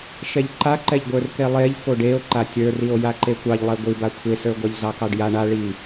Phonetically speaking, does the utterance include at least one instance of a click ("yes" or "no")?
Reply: yes